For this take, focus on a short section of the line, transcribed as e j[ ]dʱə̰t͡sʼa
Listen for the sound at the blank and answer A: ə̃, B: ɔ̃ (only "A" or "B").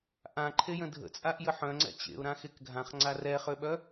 A